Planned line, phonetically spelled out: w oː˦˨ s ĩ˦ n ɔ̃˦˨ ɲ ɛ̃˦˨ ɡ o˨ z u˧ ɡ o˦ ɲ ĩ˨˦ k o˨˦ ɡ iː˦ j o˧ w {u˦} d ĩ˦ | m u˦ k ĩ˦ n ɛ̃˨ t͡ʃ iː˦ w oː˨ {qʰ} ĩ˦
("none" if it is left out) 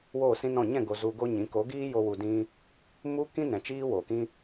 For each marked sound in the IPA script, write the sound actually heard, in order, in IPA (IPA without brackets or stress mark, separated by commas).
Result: u˧, k